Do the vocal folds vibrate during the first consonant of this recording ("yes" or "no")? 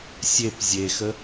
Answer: no